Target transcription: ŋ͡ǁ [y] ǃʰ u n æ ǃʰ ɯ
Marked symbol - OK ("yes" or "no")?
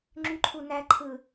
yes